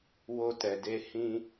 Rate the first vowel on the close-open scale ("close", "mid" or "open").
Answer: mid